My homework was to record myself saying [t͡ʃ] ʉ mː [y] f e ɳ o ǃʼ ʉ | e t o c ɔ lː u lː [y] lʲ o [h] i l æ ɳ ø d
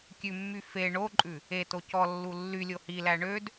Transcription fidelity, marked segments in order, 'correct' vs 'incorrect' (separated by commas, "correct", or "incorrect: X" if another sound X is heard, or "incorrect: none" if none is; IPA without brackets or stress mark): incorrect: kʲ, correct, correct, correct